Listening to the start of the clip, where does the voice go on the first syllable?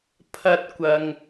high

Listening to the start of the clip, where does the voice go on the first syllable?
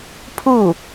falling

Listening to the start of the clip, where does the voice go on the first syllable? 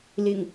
low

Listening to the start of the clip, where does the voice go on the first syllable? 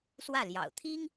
falling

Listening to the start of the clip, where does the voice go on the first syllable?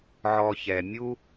low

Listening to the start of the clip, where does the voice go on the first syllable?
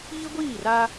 high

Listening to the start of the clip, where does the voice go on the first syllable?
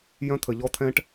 high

